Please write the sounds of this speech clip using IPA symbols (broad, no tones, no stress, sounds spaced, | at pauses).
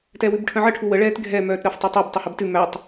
t ɛ w ʉ b ʈʰ ə̃ ʕ ə ʈʰ u w ə ɭ ɛː t ɡʱ ɛ m œː t ɾ ɜ f tˤ æ tˤ ɛ b tˤ ɜ h ɜ b t ʉ m æ tˤ